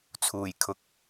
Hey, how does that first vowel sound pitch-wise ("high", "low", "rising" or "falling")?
low